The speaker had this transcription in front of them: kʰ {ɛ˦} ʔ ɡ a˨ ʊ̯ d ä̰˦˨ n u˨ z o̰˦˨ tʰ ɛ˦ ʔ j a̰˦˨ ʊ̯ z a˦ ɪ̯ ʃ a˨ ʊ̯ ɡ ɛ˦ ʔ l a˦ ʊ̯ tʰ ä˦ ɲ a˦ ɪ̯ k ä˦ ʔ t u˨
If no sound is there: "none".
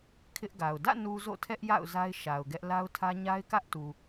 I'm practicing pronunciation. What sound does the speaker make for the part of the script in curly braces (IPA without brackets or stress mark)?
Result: ɪ˦